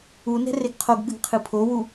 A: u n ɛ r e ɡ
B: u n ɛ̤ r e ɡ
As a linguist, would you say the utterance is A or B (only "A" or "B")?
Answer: B